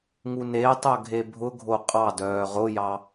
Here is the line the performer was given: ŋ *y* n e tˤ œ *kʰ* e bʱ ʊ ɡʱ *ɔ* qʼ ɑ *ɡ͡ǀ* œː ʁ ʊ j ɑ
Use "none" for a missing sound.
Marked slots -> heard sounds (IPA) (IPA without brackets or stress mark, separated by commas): u, ɡʱ, o, d